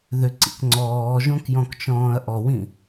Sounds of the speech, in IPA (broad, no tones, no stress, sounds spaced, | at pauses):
ð ʏ ǀ ḭ k ŋ͡ǀ ɔː ʒ õ k j ɔ̃ k t͡ʃ ɔ̃ː ɐ̯ ʔ ɔ w ĩ